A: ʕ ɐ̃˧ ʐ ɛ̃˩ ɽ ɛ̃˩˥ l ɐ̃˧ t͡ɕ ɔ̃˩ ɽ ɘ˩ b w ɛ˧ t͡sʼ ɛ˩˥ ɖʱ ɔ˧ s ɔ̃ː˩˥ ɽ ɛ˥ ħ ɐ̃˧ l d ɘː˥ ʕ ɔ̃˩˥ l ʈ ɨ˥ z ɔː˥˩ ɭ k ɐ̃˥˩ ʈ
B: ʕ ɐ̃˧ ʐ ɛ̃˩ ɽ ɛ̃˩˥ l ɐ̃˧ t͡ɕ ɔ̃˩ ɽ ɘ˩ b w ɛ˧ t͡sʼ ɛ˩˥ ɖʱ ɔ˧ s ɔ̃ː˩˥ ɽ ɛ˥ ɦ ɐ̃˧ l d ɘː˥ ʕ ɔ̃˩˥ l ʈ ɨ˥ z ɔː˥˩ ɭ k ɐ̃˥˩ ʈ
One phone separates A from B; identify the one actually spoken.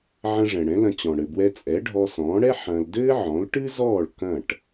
A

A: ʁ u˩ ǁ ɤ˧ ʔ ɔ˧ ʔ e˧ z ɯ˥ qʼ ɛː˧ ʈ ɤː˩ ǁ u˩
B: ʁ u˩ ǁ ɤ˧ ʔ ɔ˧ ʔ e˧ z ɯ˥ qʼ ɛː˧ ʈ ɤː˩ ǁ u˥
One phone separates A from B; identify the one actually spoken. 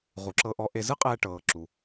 A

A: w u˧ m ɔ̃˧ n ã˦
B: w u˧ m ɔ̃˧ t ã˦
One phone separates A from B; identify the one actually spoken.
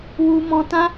B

